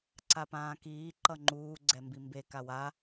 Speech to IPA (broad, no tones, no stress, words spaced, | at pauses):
ǀapãːkiː ǃʌŋ͡ǃuː ɡ͡ǀɛmbimbe kawa